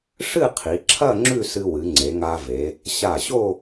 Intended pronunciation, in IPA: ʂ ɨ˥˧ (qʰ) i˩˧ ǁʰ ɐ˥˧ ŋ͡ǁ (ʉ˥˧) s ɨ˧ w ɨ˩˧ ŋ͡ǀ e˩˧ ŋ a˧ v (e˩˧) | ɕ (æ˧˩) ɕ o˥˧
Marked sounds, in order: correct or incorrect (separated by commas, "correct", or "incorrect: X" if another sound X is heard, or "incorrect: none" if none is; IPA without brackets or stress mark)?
correct, correct, correct, incorrect: a˧˩